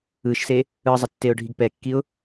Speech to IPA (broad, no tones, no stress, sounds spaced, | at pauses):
ɯ ʃ s e | ɯ zˤ a tː e ʊ̯ ɖʱ i ɡ p ɛ kː i ʊ̯